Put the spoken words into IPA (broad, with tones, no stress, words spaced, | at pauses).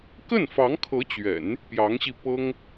kə˥˩nfɑ˧˥ŋkʰɤ˧˥t͡ɕɥɛ̰˨˩˦n | pjɑ˧˥ŋɕi˧pɤ˥ŋ